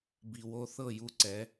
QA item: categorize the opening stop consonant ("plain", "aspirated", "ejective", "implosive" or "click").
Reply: plain